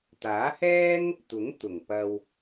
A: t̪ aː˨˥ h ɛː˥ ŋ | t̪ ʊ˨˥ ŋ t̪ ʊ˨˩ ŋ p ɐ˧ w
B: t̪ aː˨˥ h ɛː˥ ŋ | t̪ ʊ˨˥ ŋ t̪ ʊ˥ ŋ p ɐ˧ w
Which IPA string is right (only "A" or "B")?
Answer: A